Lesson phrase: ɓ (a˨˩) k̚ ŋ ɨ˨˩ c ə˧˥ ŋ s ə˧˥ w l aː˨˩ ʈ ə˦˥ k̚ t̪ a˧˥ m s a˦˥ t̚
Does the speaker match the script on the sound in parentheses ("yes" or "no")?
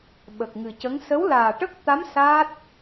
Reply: no